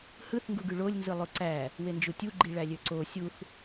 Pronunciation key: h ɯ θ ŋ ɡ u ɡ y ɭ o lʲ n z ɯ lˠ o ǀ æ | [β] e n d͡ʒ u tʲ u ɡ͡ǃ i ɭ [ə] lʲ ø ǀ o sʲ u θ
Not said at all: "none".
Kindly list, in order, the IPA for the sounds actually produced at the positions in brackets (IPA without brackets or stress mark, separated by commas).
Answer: w, æ